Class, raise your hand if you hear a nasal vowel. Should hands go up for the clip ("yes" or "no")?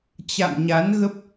no